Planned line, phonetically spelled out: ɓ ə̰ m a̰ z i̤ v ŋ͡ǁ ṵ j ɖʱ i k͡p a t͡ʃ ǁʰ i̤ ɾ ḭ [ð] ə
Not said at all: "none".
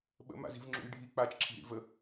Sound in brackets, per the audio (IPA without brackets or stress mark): v